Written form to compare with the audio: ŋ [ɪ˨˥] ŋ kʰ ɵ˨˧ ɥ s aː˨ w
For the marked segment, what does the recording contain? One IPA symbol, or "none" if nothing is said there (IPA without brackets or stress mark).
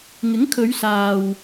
ɪ˨˥